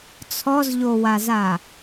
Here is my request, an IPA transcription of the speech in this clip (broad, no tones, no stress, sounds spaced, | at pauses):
t͡sʰ ɔ z ʎ o w a z a